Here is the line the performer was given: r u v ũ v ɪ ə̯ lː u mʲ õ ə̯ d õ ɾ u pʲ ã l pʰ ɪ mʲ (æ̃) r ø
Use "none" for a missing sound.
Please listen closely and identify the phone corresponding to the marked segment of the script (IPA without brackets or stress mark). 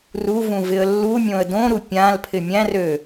æ̃